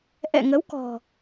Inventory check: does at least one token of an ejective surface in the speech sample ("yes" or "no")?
no